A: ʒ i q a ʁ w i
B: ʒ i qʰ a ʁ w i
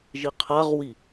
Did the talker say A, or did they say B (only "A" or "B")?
B